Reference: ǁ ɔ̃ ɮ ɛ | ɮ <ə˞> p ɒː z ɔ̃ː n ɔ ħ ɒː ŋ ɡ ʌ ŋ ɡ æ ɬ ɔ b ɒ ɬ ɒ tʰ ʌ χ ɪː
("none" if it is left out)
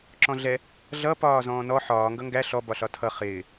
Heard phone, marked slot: ʌ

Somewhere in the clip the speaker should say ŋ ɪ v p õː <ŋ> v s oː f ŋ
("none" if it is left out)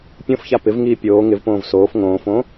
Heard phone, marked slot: none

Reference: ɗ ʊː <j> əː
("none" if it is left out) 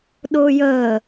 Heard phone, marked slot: j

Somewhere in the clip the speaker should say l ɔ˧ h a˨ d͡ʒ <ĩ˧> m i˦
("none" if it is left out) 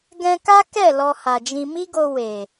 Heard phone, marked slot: ĩ˧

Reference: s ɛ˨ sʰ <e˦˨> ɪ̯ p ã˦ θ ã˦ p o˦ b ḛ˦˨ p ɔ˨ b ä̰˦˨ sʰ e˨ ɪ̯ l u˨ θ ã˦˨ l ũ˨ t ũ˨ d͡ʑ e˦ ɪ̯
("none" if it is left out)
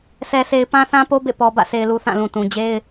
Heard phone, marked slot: e˨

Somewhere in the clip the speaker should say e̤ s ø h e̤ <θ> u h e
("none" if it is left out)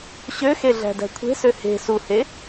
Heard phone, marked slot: s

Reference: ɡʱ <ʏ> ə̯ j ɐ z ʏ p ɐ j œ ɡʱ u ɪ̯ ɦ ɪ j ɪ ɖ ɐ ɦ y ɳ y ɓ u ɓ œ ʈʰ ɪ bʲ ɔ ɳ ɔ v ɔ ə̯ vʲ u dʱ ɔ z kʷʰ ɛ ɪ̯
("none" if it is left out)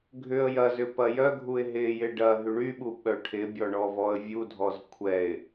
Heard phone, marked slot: ʏ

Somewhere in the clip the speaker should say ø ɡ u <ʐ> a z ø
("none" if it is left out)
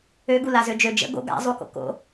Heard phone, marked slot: l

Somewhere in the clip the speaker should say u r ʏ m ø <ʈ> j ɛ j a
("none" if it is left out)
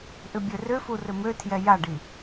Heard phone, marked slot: tʰ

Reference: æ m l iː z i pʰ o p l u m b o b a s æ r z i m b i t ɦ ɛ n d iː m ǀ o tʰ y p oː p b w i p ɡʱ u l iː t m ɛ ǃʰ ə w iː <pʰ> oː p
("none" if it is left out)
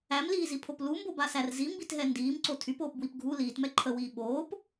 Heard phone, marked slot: ɓ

